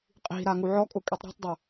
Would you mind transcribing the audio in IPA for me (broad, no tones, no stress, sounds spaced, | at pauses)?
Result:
qʼ i̤ ɾ a ŋ u ʕ ɔ kʼ ʊ kʼ i tˤ ɾ ṳ tˤ dˤ ʊ